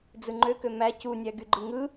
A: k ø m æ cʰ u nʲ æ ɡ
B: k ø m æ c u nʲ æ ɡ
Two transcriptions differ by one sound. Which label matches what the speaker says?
B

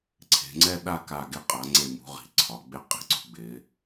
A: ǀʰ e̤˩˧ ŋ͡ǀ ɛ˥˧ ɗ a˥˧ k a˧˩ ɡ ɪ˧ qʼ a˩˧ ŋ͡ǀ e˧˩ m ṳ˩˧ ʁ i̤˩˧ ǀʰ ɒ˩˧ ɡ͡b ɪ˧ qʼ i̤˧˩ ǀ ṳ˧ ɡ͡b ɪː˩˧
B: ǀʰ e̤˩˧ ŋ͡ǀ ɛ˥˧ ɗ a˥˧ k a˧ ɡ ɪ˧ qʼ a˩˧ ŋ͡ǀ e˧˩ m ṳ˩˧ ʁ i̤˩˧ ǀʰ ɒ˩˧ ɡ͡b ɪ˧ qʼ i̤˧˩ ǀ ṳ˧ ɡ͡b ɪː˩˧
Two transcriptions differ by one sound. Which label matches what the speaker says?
A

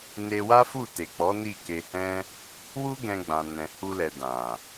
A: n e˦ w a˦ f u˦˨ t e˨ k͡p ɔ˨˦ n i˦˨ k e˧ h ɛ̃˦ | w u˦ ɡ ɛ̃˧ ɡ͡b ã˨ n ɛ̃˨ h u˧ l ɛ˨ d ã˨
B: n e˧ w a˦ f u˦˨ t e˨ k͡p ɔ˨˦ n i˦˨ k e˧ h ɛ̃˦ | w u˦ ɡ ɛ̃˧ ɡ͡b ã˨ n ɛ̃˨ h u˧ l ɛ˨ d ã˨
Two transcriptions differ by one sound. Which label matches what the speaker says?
B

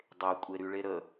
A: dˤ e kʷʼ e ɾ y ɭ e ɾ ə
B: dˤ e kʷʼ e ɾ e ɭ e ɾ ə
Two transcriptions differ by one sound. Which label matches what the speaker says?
A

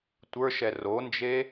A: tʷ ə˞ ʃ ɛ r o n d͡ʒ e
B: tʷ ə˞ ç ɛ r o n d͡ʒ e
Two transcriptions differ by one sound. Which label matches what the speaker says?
A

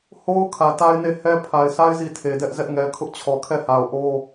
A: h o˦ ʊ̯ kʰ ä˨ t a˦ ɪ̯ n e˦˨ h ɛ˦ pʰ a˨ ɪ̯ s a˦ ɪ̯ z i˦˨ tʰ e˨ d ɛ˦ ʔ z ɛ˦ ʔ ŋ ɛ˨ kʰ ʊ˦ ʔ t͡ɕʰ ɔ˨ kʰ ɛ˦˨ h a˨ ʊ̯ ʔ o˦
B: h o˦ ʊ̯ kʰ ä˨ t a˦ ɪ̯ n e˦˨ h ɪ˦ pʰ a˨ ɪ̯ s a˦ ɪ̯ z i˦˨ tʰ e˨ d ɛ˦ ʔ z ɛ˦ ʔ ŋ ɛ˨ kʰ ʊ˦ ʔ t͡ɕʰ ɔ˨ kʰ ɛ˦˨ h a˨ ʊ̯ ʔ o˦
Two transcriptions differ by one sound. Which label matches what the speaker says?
A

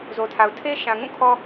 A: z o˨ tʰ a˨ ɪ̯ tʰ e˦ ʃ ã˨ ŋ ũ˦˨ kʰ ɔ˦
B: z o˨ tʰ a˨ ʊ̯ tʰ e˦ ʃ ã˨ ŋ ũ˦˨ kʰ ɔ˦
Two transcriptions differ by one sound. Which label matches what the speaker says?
B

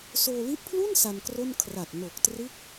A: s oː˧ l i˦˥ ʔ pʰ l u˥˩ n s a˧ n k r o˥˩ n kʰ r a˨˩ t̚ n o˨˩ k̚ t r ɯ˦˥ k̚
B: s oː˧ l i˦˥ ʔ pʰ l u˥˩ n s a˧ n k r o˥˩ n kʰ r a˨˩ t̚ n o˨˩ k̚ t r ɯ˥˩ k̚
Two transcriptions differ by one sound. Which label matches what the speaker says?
A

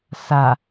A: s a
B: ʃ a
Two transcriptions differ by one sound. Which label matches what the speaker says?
A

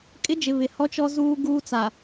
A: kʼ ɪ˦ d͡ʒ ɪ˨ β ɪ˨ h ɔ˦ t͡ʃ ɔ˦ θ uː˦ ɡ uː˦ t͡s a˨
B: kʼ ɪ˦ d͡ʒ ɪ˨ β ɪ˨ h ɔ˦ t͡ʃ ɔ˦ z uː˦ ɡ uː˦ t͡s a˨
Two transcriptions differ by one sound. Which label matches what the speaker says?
B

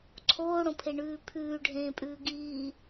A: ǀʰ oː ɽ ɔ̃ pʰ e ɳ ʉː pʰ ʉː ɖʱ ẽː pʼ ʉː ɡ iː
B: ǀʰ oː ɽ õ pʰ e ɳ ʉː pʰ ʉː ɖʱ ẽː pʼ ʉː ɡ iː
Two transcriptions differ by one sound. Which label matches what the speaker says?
B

